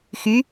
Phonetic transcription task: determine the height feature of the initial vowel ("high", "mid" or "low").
high